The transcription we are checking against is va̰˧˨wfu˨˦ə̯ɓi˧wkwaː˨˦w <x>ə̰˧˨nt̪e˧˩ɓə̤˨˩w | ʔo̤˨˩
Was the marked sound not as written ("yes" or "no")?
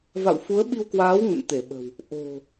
yes